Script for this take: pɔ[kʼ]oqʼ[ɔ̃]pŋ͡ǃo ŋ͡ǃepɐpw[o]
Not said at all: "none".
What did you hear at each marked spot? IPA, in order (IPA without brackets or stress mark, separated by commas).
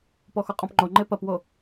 x, ɔ̃, o